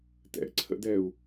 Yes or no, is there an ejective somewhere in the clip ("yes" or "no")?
no